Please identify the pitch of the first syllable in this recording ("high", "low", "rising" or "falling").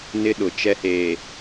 high